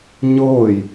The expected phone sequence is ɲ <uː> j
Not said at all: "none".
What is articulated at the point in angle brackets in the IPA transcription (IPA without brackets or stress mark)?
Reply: ʊː